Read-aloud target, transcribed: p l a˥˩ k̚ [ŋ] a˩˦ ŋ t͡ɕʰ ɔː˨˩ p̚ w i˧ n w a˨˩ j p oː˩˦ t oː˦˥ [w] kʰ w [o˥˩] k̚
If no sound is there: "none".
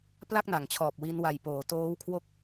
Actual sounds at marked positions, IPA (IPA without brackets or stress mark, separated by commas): n, w, o˥˩